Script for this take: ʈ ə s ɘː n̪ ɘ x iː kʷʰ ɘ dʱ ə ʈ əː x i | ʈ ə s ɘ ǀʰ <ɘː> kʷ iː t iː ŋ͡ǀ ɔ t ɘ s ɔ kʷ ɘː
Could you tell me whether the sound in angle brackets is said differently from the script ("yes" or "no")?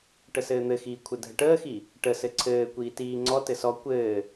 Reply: no